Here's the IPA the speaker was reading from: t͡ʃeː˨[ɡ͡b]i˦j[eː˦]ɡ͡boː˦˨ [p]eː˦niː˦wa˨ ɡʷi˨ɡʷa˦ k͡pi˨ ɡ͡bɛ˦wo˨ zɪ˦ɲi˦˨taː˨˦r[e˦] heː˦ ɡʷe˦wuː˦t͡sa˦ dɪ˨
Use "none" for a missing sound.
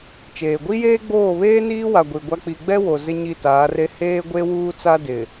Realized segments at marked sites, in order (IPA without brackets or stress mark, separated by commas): ɡʷ, eː˦, β, e˦